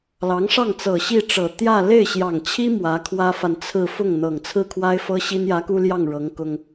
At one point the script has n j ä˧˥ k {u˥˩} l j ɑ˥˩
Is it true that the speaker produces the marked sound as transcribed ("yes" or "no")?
no